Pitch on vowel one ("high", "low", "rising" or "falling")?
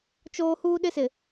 high